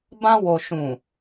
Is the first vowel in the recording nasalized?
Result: yes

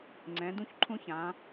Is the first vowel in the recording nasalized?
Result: yes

